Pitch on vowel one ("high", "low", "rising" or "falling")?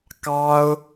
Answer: high